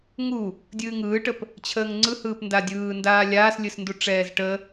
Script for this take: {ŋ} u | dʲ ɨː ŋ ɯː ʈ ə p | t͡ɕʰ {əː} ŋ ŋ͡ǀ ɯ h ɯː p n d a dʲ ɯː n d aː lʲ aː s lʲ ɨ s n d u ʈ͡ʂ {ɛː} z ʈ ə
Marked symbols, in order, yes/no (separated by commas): yes, yes, yes